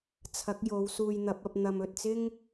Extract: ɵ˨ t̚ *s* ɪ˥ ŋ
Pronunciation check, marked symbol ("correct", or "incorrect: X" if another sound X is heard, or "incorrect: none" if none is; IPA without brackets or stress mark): incorrect: t͡s